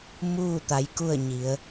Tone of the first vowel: falling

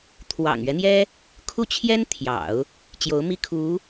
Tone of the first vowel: low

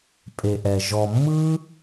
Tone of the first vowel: low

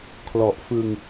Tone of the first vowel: low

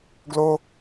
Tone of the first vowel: high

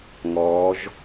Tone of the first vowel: rising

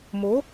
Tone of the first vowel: rising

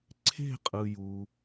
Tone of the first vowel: falling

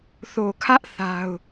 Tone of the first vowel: low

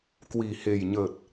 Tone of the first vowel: low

